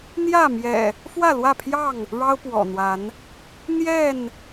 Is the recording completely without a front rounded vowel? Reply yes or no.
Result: yes